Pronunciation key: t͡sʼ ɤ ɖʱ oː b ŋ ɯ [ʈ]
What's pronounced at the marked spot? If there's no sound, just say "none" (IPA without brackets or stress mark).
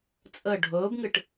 ʈ